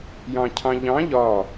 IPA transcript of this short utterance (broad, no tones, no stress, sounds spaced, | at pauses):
j ɑ̃ cʰ ɑ̃ ʎ ɑ̃ ʎ ɒ